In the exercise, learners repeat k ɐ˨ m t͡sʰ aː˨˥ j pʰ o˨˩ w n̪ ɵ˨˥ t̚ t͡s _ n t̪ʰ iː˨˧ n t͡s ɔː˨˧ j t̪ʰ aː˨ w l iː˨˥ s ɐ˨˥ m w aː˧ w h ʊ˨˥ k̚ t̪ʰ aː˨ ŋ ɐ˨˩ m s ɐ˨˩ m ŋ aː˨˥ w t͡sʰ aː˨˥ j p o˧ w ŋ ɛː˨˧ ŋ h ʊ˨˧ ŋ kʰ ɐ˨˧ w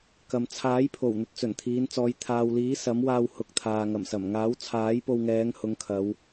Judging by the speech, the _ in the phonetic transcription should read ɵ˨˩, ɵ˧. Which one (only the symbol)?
ɵ˨˩